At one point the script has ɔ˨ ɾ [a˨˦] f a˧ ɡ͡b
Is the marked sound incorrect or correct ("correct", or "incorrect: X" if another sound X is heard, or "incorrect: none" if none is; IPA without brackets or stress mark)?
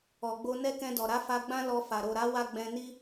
correct